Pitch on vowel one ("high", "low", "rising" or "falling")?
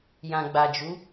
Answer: low